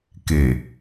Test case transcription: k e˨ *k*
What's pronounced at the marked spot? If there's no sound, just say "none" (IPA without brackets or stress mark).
none